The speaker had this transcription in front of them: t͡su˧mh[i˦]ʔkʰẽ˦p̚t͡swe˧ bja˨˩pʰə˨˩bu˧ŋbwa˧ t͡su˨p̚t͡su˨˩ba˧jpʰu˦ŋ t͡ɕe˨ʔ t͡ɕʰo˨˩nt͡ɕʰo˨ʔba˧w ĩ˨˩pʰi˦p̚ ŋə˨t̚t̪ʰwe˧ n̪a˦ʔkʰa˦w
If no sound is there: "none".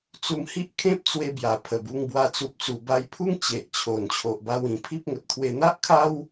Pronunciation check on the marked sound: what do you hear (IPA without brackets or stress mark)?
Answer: i˦